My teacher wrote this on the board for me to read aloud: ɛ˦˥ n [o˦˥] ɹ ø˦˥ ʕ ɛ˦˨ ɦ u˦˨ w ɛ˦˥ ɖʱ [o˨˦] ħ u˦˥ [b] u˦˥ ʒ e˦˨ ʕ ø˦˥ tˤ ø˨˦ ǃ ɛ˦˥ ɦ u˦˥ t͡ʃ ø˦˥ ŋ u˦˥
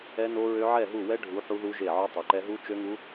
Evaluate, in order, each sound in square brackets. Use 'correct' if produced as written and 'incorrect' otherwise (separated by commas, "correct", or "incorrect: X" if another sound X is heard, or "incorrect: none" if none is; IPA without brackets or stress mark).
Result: correct, incorrect: u˨˦, incorrect: ð